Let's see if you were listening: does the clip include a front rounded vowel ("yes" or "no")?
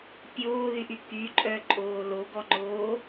yes